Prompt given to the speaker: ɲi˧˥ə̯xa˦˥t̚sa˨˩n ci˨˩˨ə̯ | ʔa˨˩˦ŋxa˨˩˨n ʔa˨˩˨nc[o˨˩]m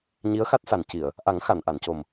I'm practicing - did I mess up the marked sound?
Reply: no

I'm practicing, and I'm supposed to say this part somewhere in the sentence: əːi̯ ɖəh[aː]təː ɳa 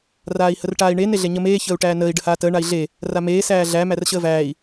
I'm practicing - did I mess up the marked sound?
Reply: no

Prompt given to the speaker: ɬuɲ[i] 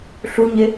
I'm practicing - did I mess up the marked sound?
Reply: yes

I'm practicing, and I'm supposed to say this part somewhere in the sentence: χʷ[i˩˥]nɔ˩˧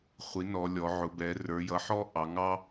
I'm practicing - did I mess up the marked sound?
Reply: no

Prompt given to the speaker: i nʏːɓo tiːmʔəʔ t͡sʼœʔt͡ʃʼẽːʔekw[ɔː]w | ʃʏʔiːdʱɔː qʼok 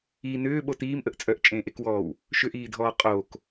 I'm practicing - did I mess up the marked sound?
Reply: no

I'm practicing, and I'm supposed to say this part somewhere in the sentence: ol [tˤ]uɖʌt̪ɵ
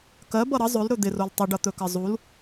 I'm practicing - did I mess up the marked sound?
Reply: no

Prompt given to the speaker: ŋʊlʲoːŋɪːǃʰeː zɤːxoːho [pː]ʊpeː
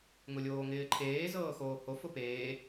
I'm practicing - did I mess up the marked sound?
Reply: yes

